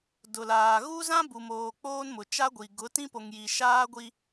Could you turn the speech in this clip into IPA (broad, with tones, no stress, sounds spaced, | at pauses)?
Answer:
d ʊ˨ l aː˨ ɣ u˦ z ã˦ b u˨ m oː˨ k͡p oː˦ n m ʊ˨ t͡ʃ a˦ ɡʷ i˨ ɡ ʊ˨˦ t ĩ˦ p o˨ ŋ j i˨ ʃ aː˦ ɡʷ i˦